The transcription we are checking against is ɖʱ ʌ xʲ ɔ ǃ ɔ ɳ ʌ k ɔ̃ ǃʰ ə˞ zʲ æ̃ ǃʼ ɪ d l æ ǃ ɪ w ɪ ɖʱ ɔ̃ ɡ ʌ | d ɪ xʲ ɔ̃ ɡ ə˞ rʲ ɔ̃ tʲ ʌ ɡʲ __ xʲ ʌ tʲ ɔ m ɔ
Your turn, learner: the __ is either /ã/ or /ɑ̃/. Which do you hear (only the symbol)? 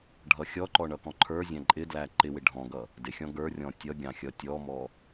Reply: ɑ̃